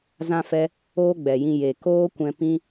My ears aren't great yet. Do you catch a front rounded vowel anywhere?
no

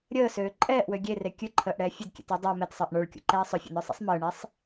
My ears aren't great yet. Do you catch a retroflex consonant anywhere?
yes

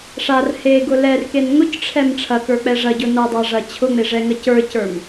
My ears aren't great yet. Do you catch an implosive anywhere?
no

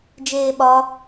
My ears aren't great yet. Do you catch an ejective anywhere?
no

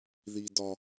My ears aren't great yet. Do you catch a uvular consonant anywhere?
no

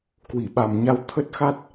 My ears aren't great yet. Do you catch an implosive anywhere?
yes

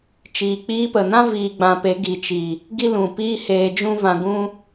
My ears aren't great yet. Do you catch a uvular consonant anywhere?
no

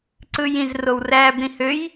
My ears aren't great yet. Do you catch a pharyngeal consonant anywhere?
no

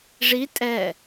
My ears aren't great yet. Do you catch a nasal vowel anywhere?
no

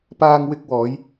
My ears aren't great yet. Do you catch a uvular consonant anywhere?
no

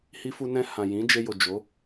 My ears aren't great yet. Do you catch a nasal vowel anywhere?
yes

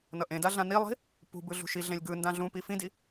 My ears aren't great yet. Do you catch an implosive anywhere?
no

